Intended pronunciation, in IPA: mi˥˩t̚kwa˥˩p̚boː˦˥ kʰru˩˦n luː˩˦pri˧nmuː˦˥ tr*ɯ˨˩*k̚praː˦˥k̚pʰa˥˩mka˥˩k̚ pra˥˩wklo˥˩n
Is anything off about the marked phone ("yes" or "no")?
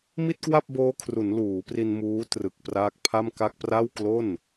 no